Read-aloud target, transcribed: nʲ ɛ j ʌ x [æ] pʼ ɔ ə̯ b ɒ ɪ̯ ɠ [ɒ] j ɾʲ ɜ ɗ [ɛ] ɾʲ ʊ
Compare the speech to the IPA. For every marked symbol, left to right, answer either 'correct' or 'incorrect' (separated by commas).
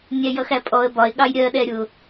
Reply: correct, incorrect, correct